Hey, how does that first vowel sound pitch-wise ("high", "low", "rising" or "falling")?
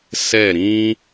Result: falling